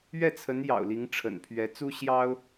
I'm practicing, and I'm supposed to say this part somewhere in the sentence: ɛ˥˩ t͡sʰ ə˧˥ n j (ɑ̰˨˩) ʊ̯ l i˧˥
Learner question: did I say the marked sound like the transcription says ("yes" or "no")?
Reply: yes